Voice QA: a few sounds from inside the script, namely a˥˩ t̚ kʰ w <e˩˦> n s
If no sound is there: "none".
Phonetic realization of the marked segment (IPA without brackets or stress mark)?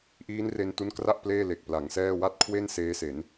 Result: e˥˩